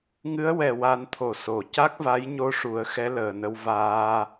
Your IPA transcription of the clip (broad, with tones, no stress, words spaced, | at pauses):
ŋɨ˧˥ə̯wɛ˨˩wa˨˩˦n t̪ʰo˨˩˨ so˨˩˨ ca˦˥k̚va˧˥j ɲo˧ʂu˨˩˦ə̯ xɛ˧˥ləː˨˩nə˧w vaː˧